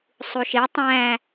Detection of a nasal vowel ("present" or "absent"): present